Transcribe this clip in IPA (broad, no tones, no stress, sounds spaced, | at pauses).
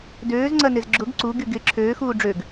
d øː z ŋ͡ǀ ɐ n ɪ z ɡ͡ǁ ʊ ɡ ǀ u ɡ y ɡ ɪ ǁʰ øː x uː ɖ͡ʐ ø ɡ